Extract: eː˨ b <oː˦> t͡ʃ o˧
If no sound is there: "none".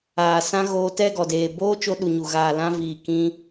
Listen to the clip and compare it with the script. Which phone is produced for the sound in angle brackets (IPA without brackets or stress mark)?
oː˦